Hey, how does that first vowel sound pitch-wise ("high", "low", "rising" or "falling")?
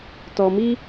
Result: low